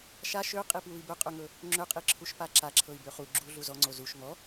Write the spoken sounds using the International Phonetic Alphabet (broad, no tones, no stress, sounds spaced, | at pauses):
ʃ a ʃ ø qʼ i p w u i̯ b ɵ qʼ ø ŋ ɵ | ŋ͡ǁ ø qʼ i ǁʰ u ʃ p a ǁ a ǁʰ ɤ i̯ b ø χ u ɡ͡ǁ u ɮ u z ɔ ŋ͡ǀ o z u ʃ ŋ ɔ